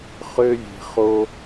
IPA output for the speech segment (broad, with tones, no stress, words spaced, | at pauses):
χø˦vʲe̤˧ χo˦